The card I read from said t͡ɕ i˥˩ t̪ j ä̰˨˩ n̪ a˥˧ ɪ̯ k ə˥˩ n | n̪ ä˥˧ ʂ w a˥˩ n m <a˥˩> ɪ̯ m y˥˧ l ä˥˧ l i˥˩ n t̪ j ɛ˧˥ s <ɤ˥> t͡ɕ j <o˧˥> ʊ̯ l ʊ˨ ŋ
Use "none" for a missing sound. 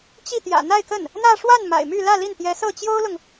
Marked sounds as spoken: a̰˨˩, ɤ˥˩, o˥

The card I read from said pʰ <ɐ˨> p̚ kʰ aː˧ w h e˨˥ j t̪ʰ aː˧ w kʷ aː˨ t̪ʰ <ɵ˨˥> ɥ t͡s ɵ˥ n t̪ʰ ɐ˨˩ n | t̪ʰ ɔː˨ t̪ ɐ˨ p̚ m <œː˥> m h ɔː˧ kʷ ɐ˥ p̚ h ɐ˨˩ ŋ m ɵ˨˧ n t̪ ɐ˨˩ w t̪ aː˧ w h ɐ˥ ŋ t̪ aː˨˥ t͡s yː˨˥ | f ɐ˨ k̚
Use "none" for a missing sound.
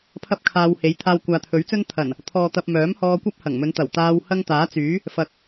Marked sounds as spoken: ɐ˥, ɵ˨˥, œː˨˥

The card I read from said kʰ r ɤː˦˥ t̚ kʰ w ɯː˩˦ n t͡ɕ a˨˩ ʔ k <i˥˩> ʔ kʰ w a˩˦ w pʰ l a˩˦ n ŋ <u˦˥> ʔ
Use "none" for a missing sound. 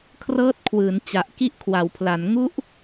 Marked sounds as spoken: i˥˩, u˦˥

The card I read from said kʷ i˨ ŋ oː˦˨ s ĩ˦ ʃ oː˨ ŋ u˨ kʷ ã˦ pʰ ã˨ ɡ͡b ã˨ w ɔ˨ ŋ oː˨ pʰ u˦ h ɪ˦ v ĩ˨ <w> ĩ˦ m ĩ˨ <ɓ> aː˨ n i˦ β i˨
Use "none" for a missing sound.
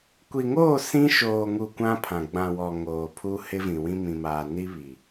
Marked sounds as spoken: w, m

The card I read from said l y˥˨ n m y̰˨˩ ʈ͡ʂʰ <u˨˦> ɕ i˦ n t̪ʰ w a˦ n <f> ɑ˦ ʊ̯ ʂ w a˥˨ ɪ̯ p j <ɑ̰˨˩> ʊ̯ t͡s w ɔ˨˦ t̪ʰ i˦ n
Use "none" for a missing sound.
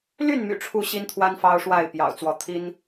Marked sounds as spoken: u˥˨, f, ɑ̰˨˩

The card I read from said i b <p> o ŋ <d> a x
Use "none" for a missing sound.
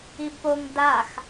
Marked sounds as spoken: p, d

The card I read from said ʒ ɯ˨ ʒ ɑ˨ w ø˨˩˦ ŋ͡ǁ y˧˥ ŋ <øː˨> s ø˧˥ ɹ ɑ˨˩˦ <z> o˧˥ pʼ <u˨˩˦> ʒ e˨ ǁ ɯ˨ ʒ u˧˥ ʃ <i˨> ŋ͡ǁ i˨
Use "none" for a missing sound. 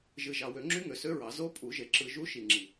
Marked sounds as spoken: ø˨, z, u˨˩˦, i˨

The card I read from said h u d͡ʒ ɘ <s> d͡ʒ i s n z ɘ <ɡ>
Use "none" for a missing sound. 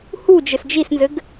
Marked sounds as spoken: s, ɡ

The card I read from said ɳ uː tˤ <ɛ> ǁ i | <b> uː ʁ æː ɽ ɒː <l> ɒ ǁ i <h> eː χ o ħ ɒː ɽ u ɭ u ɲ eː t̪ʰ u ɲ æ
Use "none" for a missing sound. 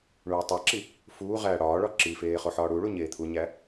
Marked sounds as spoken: æ, f, ɭ, f

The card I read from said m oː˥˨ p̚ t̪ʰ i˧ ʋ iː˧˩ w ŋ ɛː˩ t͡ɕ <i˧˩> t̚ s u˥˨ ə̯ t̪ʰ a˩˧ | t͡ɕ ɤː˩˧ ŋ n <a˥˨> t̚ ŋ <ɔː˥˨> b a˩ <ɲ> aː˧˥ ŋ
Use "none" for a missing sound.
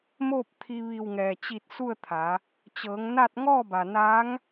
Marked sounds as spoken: i˧˩, a˥˨, ɔː˥˨, n

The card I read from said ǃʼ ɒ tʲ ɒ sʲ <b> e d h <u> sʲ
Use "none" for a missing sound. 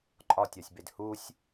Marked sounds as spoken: b, u

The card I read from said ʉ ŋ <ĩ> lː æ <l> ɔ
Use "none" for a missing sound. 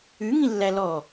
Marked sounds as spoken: ĩ, l

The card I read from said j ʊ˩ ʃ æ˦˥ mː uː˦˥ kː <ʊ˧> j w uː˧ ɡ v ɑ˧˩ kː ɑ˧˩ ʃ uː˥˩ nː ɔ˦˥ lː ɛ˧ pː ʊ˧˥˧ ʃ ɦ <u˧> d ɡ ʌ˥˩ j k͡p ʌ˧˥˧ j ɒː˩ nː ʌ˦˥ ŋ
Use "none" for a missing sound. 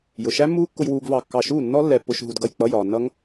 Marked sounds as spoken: ʊ˧, u˧

